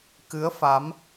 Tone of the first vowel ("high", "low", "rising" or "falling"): rising